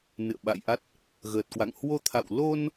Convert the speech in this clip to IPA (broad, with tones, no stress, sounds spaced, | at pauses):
n ɨ̰˧˨ ə̯ ɓ a̰˧˨ j ʔ a˦˥ t̚ | ɣ əː˨˩ t̚ k w a̰˧˨ ŋ h w o˧ t̪ʰ a̰˧˨ w l o˧ n